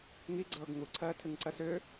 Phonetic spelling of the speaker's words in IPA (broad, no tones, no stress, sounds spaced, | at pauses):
ŋ i ɡ͡ǀ ɤː ɡ ŋ u ǀʰ ɜː tʰ ɨ ŋ ǀ ɜ s ʏ